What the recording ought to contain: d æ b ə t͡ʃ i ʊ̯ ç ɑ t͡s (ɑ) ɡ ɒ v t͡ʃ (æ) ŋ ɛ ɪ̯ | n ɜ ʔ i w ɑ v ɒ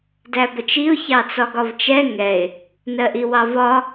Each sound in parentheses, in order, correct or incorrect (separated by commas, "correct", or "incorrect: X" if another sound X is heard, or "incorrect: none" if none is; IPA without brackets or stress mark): incorrect: ɒ, incorrect: ɛ